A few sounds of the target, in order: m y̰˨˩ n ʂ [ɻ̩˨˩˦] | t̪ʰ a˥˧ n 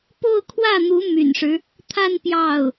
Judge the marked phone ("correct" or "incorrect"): incorrect